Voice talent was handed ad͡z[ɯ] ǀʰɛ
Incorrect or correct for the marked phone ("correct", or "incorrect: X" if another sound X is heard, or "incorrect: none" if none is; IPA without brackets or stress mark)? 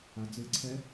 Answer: correct